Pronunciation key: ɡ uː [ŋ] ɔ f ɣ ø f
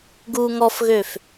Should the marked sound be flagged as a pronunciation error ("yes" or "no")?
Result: no